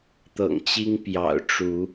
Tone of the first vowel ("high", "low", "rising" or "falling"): low